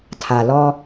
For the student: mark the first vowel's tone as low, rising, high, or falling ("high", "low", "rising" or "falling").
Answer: low